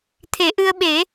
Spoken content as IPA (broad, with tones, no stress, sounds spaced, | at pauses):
t̪ʰ e˨˩˦ ʔ ɨ˧ ə̯ ɓ e˨˩˦